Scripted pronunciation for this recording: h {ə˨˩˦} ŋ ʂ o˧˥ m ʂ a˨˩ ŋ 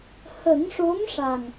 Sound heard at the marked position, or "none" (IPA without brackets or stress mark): ə˨˩˦